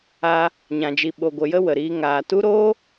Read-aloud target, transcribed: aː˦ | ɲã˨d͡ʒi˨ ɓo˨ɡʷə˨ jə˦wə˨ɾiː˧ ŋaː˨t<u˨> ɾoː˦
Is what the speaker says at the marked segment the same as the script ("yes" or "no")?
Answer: no